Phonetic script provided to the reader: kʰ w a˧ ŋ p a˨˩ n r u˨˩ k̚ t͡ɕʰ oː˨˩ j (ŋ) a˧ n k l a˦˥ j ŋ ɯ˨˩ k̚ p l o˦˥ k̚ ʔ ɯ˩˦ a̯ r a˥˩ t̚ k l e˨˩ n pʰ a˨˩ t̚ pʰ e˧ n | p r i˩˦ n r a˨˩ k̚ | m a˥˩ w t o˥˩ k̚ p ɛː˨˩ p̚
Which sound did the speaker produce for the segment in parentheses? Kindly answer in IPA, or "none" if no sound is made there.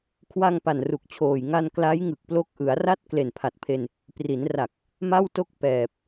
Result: ŋ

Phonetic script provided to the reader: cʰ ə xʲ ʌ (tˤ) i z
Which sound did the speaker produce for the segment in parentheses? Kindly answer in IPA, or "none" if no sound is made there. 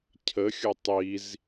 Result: tˤ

